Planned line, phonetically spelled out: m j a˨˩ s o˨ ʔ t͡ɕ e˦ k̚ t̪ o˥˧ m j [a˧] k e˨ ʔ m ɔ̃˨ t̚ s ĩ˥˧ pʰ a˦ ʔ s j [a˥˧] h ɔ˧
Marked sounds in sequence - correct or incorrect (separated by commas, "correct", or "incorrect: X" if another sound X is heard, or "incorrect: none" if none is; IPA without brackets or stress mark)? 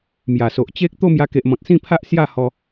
correct, correct